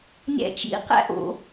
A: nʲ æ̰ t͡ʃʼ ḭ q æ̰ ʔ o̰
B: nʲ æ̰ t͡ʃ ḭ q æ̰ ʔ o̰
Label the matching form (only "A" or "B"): B